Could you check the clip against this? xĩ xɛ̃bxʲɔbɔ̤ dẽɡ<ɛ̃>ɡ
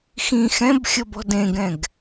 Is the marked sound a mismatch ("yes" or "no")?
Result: no